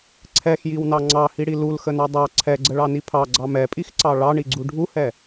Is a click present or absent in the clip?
present